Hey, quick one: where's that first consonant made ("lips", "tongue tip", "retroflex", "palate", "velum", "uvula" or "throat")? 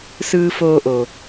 tongue tip